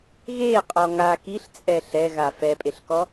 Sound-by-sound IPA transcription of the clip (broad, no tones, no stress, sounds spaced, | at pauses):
ɣ e qʼ ɔ ŋ a k i ɬ t͡sʼ ɛ ɬ ɛ ɣ a f ɛ pʼ e ɬ k ɔ